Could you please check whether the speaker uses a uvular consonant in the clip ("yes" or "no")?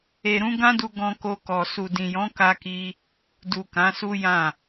no